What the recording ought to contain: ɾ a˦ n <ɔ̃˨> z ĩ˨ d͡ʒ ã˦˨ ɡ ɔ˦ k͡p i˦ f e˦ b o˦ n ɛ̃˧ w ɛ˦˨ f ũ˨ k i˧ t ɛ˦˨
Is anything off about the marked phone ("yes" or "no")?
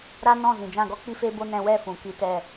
yes